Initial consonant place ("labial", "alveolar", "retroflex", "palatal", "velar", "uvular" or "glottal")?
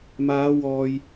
labial